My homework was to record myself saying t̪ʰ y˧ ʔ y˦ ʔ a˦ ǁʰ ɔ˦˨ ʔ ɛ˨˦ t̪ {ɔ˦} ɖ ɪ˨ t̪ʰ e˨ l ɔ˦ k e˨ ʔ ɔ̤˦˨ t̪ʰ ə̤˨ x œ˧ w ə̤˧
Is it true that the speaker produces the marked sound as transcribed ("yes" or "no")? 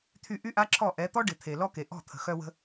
yes